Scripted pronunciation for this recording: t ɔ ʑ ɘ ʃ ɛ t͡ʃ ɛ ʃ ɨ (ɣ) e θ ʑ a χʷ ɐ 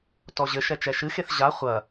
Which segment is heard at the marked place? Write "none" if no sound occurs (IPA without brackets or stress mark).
x